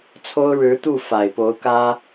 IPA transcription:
t͡sʰ o˥ ʊ̯ ɻ ɻ̩˧˥ t̪ u˥˩ f a˨˩ ɪ̯ p o˧˥ ʊ̯ k ä˥

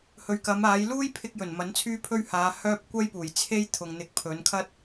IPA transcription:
h ɵ˨ ɥ k ɐ˨˧ m aː˨˧ j l uː˥ j pʰ ɪ˧ k̚ j ɵ˨˩ n m ɐ˨˥ n t͡sʰ yː˥ pʰ ɵ˥ ɥ h aː˨˧ h œː˥ p̚ kʷ ɐ˥ j p uː˨˩ j t͡sʰ e˥ j t̪ʰ ʊ˨ ŋ n̪ ɪ˨˥ k̚ pʰ ɵ˨˧ n kʰ ɐ˥ t̚

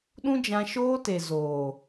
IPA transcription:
ɗ ũ˦ d͡ʒ ã˧ ʃ oː˦ t e˨ z oː˨

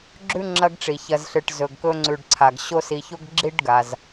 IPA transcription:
ɡ͡ǁ ʉ˦ ŋ͡ǁ ɐ˦ ɡ ʈ͡ʂ i˩ ç ɐ˨ z ɬ ɨ˩ ʈ z ɵ˩ ɡ k ɵ˦ ŋ͡ǀ ʉ˨ ɖ ǀʰ a˩ ɡ ɕ o˦ s i˨ ç o˥ ɡ ɡ͡ǁ i˥ ɖ ɡ a˩ z

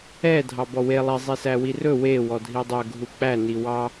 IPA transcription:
ɛ dʱ ɑ b ɔ w e lˠ e zˤ i s æ w i r ɵ w e w ɔ dʱ i dˤ œ ɡʱ u k͡p æ n i w ɑ

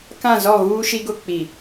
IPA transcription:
k ã˦˨ z ɔ˦˨ ɣ uː˦ ʃ i˦ ɡ ʊ˦ k͡p i˨

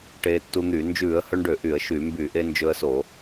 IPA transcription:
ʈ eː˧ tː u˧ n̪ y˧˩˧ n d͡ʒ ʉː˧˩˧ ə̯ h ɵ˧ ɳ ɖ ø˧˩˧ ʔ y˧˩˧ ə̯ ʃ y˧˩˧ m b y˧˩˧ ʔ e˧ n d͡ʒ ɵ˧ ə̯ s o˧˩˧

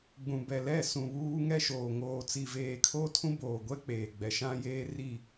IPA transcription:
ɡ͡b ũ˨ b ɛ˨ l ɛ˦˨ s ũ˨ β uː˦ ŋ ɛ˦ ʃ oː˨ ŋ oː˨ t͡s i˨ v eː˨ kʰ oː˦ tʰ ũ˦ b oː˨ ɡʷ ɛ˦ k͡p eː˨ ɡ͡b ɛ˨ ʃ ã˦ j eː˦ r i˦˨

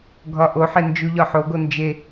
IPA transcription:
ɡʱ ɒ ʔ o ħ e n d͡ʒ u ʎ ɒ ħ o ɡ o n d͡ʒ e

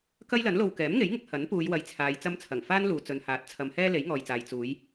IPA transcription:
k ɐ˥ j l ɐ˨˥ n l o˧ w k ɛː˨˥ m ŋ e˨˥ j ŋ ɪ˧ k̚ h ɐ˨˥ n p uː˨˧ j w ɐ˨˥ j t͡sʰ aː˨ j t͡s ɐ˧ m t͡sʰ ɐ˨˩ ŋ f aː˥ n l uː˨ t͡s ɵ˨ n h aː˨˥ t̚ t͡sʰ ɐ˨˧ m h ɛː˥ l e˨˥ j ŋ ɔː˨ j t͡s aː˨ j t͡s uː˨˧ j

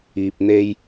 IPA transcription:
iː˧ p̚ n̪ e˧ j

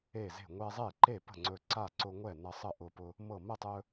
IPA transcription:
e˥˩ z e̤˥˩ ŋʷ ɛ˧ zˤ e˥˩ ǃ e˥˩ p ə̤˥˩ ŋ͡ǀ ɵ˧ ǀ a˥˩ ǀ ʊ˧ ŋʷ ɛ˥˩ n ʌ˧ sˤ ə˥˩ ʔ ʊ˧ p ʊ˧ | m ɤ˥˩ m ə˥˩ tˤ ɵ˧

